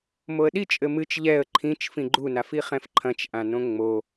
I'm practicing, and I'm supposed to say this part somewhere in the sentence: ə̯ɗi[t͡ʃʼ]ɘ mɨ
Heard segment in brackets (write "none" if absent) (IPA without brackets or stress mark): t͡ʃʼ